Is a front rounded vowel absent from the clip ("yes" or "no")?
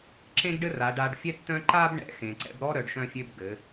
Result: no